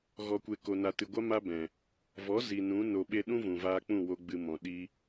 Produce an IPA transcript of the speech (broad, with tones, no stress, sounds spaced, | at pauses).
ɣ ɔ˨ kʷ e˨ k o˨ n a˨ t ɨ˨ ɡʷ a˦ m a˦ b ɛ̃˨ | v ɔ˨˦ z i˨ n ũ˨˦ n o˨ ɓ e˧ ɗ ũ˦ v ũ˨ v aː˧ k͡p ũ˦˨ w o˧ ɡ͡b ɨ˧ m ɔ̃˨ ɗ i˦